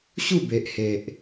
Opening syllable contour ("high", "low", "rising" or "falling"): falling